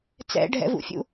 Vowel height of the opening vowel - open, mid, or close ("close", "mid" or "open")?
mid